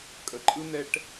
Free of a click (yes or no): no